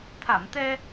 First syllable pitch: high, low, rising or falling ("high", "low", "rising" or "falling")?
low